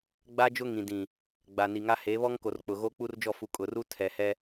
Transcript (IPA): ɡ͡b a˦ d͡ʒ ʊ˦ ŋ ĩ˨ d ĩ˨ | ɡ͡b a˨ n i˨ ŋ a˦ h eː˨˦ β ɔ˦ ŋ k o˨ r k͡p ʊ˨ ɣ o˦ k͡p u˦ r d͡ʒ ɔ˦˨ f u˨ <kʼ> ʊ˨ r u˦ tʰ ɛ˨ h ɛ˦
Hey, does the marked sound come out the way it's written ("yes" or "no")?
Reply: yes